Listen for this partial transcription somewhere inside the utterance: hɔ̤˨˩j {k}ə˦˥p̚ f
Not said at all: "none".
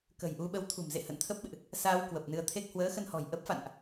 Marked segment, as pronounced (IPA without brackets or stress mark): ʔ